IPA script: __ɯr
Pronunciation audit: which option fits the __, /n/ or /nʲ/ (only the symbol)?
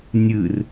nʲ